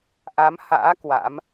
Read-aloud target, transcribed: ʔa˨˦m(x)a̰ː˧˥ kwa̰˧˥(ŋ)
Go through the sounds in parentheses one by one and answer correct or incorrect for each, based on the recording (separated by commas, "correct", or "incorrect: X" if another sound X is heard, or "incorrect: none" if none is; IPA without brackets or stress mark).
incorrect: h, incorrect: m